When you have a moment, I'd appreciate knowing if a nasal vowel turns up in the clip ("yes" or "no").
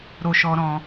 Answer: yes